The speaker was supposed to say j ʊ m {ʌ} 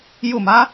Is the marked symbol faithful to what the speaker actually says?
no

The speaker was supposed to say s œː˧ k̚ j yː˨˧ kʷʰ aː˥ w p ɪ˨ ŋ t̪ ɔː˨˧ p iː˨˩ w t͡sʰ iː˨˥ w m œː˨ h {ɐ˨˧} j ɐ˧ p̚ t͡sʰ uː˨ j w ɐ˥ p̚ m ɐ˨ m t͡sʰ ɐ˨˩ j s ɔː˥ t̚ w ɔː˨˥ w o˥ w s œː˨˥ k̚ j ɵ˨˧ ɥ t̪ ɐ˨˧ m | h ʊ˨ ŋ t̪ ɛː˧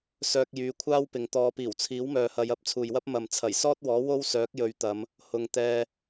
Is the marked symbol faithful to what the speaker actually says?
yes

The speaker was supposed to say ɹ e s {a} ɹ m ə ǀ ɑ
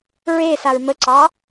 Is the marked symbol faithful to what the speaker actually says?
yes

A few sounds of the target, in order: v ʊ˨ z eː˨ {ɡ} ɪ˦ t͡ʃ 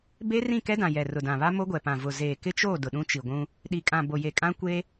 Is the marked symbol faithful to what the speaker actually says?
no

